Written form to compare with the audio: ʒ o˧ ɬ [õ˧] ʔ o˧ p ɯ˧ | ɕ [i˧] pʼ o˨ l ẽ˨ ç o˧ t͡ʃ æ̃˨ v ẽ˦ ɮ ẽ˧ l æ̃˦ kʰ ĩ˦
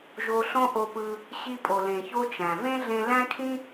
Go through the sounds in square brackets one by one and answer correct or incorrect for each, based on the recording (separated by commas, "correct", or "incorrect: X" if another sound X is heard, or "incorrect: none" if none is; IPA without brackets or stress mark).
incorrect: õ˦, correct